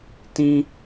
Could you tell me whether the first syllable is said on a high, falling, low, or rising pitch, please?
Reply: high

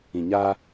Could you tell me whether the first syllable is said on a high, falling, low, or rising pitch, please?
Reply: low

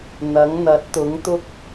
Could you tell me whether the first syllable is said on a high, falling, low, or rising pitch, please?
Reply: rising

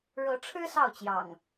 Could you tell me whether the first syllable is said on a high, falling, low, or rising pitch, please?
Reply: rising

